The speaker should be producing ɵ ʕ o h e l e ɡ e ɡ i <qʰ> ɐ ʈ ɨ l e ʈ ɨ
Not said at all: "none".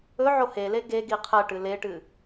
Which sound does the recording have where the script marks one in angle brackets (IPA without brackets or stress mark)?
qʰ